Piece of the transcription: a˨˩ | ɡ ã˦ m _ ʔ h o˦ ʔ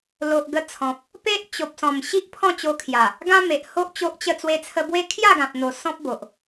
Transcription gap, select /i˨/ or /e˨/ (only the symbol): e˨